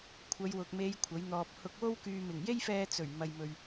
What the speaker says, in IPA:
kʷʰ ɐ˨˧ j w ʊ˨ k̚ m e˨˧ j kʷʰ ɐ˨˥ j n̪ ɔː˧ p̚ h ʊ˧ k̚ w o˥ w k yː˧ m ɪ˨˩ ŋ j e˥ j f ɛː˧ t͡s ɵ˨˩ ɥ m ɐ˨ j m ɵ˨ ɥ

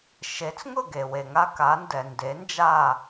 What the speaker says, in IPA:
ʃ e˩˥ t͡s ŋ ʊ˥˩ ɡ e˩ w e˩ ŋ a˥ k a˩˥ n d ɛ˩ n d e˩˥ n d͡ʒ a˥˩

